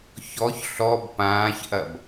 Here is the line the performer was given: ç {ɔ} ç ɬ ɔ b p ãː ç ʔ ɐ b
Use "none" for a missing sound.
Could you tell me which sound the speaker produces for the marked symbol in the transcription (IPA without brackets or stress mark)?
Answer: ɔ